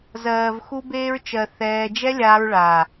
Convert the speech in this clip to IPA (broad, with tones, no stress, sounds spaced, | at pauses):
z ɜː˨ v x u˧ b eː˧ ɹ t͡ʃ ɜ˨ θ ɛː˧ d͡ʒ ɛ˦ lʲ aː˧ ɹ ɭ aː˨